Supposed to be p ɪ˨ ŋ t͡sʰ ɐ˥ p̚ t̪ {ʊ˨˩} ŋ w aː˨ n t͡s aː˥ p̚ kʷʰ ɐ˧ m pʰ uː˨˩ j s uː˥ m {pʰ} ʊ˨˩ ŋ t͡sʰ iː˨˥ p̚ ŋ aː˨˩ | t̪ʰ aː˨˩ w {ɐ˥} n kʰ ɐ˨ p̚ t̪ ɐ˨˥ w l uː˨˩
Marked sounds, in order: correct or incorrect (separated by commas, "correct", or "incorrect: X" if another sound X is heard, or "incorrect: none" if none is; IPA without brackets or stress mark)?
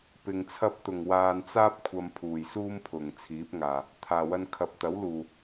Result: correct, correct, incorrect: ɐ˧